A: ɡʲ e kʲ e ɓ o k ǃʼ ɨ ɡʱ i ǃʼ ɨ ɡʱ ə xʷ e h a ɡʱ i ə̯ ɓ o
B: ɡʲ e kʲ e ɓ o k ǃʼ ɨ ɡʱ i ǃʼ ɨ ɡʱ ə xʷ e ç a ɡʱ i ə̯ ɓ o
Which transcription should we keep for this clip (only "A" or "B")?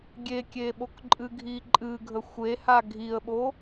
A